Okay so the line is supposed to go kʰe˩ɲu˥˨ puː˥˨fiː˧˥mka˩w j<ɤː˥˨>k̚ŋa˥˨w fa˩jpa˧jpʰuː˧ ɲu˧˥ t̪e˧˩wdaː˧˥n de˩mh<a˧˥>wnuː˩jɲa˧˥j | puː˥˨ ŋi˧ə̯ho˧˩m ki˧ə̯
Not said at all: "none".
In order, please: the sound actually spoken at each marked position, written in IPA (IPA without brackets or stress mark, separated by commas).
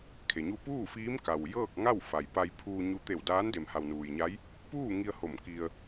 ɤː˥˨, a˩